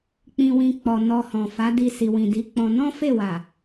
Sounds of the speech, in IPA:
k͡pĩ˧wĩ˧ k͡pɔ˨ nɔ˧hɔ̃˨ fa˨˦di˧ si˨wĩ˨di˨˦k͡pɔ̃˧ nɔ̃˦fe˦˨wa˨

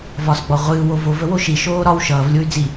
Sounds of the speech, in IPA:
vɒsɡ͡bɔ ʁʷɨːwo vovəwo ʃiʃoː ɾɒw ʃʌːvlʲoy̯ d͡zi

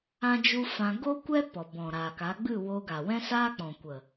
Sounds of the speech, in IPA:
ã˦d͡ʒu˦fã˧ ɡo˦kʷɛ˦ pɔ˨ bɔ̃˨ɾa˨ka˨˦ ɡ͡bɨ˦˨wo˧ ɡa˨wɛ̃˦saː˦ k͡pɔ̃˨kʷə˨

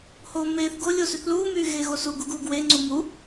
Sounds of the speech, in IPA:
hoːmeːθɡo lʲosyθluː myːɣeɣosu ɡuɡuːɡwe ŋ͡ǀumu

